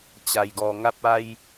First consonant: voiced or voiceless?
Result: voiceless